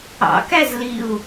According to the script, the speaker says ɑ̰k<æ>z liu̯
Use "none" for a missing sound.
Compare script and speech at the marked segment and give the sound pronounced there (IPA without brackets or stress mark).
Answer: æ